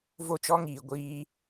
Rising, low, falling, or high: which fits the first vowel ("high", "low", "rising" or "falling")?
high